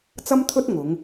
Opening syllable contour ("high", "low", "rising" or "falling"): high